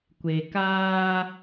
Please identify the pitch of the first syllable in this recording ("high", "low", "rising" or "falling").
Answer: low